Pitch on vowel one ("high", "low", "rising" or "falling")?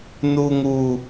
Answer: high